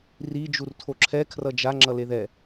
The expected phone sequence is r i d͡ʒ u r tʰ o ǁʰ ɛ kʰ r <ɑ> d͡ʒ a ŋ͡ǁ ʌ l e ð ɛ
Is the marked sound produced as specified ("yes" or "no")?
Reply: no